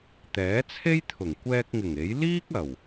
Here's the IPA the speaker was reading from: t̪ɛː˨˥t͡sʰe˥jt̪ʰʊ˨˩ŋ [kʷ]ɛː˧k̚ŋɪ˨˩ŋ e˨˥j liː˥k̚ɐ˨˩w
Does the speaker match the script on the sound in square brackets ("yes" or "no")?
yes